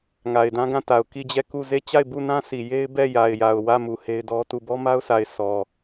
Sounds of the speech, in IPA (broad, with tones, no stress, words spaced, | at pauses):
ŋa˨ɪ̯dã˦ɡã˦˨ta˨ʊ̯ ki˦˨d͡ʑɛ˦˨ku˦˨ ze˦˨t͡ɕa˦˨ɪ̯bu˦˨nã˦ sʰi˨ je˦ɪ̯bɛ˦˨ ja˨ɪ̯ja˨ʊ̯ wä˦˨mu˨ he˦ɪ̯dɔ˦tu˦˨ bɔ˦ma˦ʊ̯sʰa˨ɪ̯ sɔ˨